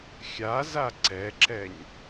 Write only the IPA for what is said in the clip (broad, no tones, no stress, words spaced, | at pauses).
xʲaza ǀɛǁɛɲ